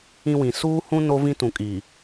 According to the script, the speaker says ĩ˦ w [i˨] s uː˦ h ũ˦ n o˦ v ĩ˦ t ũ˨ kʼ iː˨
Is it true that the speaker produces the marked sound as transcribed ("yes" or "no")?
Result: no